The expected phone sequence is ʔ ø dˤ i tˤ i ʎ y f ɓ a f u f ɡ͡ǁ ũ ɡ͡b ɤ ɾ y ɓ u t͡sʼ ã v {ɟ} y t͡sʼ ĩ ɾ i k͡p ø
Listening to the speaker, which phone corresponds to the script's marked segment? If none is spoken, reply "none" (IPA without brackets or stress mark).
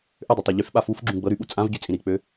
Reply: ɟ